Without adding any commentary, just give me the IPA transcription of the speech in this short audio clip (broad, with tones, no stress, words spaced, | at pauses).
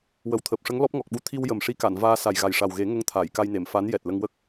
wə˨˩wt̪ʰəː˨˩p̚ʂə˧˥ŋ lɔ˦˥p̚ŋɔ˨˩k̚ɓu˧ t̪ʰi˧wjə˨˩m ʂi˧˥ka˨˩˨nvaː˧ sa˨˩jɣa˨˩jʂa˨˩wɣe˨˩˦ ŋə˧ŋ t̪ʰaː˨˩˨jka˧jne˨˩˨m fa˧˥n jɛ˨˩t̚lə˧ŋwə˦˥k̚